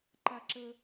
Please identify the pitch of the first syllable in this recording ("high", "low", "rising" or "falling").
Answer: high